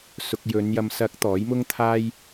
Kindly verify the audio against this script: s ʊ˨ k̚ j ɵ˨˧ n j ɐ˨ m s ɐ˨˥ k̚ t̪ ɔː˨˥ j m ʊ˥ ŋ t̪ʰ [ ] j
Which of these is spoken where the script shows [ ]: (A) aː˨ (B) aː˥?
B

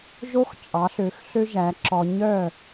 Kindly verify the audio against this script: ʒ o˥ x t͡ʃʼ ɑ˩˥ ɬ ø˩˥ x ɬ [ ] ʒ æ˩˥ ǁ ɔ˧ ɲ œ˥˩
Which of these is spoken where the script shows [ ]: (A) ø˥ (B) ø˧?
A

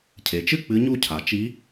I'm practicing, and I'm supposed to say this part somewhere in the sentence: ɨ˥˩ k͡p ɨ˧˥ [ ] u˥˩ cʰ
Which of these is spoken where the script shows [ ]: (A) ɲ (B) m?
A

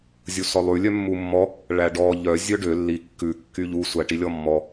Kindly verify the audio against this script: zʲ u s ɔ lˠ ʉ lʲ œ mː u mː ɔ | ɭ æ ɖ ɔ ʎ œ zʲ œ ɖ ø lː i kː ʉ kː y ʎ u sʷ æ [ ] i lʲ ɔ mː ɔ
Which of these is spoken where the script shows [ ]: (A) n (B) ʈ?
B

